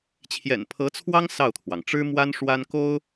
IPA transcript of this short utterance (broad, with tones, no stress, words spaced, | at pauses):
t͡ɕʰjɛ̰˨˩npʰɤ˧˥t͡sʰwɑ˥ŋ sɑ˥˩ʊ̯t̪ʰwɑ˩ŋ ʈ͡ʂɻ̩˥ mwa˥nʂwa˥n ko˥ʊ̯